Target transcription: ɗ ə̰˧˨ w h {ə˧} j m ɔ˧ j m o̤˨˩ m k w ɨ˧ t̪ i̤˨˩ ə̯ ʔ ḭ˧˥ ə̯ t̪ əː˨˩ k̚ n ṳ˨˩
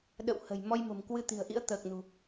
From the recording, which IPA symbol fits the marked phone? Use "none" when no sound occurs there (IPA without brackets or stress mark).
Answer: ə̤˨˩